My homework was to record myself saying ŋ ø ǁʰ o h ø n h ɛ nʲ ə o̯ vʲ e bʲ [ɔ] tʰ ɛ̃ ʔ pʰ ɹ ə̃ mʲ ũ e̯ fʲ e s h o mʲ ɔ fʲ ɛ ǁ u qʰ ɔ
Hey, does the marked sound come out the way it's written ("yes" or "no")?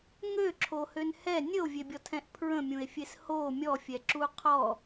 yes